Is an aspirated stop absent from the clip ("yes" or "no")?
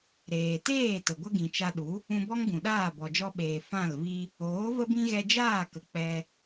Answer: yes